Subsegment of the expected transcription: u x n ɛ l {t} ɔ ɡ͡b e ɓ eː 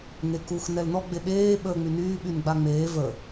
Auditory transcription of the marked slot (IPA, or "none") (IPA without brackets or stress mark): n